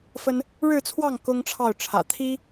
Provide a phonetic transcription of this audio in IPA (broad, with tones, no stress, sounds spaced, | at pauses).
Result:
f ə˥ n | ɻ ɻ̩˥˧ t͡sʰ w ɑ˥˩ ŋ k ʊ˥ ŋ ʈ͡ʂʰ ɑ˥˩ ʊ̯ ʈ͡ʂʰ ä̰˨˩ t̪ʰ i˥